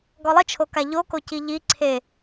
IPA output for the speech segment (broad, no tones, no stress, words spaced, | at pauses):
ɡɔlˠɪt͡ʃʰoka ʎoko ciʎi ǀʰe